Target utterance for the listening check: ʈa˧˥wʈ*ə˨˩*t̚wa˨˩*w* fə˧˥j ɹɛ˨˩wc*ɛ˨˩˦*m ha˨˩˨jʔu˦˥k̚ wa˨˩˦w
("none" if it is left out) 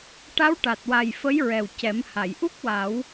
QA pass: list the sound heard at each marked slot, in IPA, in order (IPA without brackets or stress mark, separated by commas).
a˨˩, j, ɛ˨˩˦